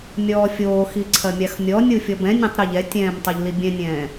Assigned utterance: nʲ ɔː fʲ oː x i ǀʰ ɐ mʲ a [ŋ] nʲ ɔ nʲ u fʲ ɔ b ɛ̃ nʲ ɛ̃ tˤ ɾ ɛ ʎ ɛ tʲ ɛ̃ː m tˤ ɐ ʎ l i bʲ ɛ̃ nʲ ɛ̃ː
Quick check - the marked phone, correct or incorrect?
incorrect